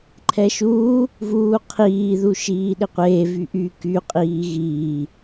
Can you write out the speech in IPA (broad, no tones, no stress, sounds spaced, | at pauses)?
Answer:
ǃʰ ɛ ʃ uː | v uː qʰ iː ð u ʃ iː ɗ ɪ qʷ eː v y ʔ y k y qʼ iː ɣ iː